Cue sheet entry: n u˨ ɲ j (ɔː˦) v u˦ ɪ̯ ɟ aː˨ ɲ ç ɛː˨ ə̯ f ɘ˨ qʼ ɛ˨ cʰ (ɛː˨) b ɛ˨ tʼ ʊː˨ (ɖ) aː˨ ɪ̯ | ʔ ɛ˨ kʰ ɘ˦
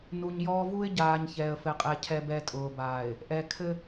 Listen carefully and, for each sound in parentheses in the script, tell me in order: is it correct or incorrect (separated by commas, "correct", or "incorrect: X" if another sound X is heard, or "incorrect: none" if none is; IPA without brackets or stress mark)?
correct, incorrect: ɛ˨, incorrect: b